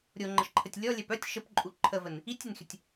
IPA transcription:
ɾʲ o ŋ͡ǃ ə ʃ ǃʰ ə tʲ lʲ ɔ lʲ ɛ p œ tʲ ʃ ə p ǃʼ u ǃʰ ə v ə n | i tʲ ə n xʲ ə tʲ

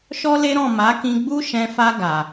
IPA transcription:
ʃ ɔ˦ l e˦ ɾ ɔ̃˦˨ m a˨˦ k ĩ˧ ɡ͡b u˦ ʃ ɛ̃˧ f a˧ ɡ a˨

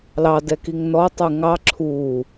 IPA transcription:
l ɑ d ɛ k i ŋ n ɔ tˤ u ŋ ɑ ǁʰ uː

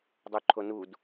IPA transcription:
dˤ u ǃʰ o n u d

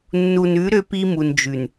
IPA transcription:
nː u˨ n ʉ˨˦ ɾ ø˦ p i˦ m u˨ n d͡ʒ ʉ˨ n

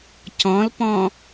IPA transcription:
c ɔ̃ l p ɔ̃

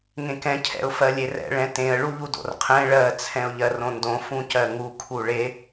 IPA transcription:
ŋ ẽ k ɛ̃ cʰ ɛ̰ ʊ̯ f ɜ lʲ e r ɛ̰ ɭ ɛ̃ t ẽ ə̯ ɭ u ʎ u d o̰ r qʰ ɛ̃ ɭ ɜ t͡sʰ ɛ̃ ʊ̯ ʎ ɜ r õ n d õ f ũ c ɜ ŋ u kʰ u ɭ e

